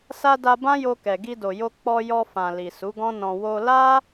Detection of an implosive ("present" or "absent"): absent